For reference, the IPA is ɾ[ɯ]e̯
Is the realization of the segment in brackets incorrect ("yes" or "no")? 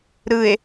no